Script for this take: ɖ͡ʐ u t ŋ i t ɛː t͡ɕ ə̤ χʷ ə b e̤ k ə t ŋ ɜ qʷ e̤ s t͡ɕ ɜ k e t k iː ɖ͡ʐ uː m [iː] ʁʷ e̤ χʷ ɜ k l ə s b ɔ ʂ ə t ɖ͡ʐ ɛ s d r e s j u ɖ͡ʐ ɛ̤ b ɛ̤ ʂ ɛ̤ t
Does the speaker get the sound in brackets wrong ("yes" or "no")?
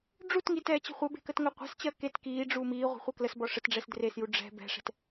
no